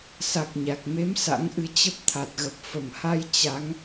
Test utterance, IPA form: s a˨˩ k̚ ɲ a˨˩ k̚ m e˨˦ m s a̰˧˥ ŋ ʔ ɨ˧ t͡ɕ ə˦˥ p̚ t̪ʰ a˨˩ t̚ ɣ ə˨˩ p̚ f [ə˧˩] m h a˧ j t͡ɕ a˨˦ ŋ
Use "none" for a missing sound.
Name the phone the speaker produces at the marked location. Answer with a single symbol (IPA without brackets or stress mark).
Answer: ə˨˩